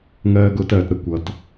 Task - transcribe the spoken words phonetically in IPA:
ŋɜː˧ɡʊː˧t ɜ˨tɾə˨kʷ ʌ˨t

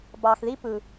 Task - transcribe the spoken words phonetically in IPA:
bɑ˨xði˦pɯ˨

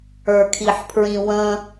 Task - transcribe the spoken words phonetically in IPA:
ə˞kʰiħpʰɹĩwə̃

